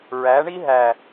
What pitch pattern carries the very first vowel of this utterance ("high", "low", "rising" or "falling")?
rising